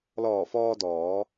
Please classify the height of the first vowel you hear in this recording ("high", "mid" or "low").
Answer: mid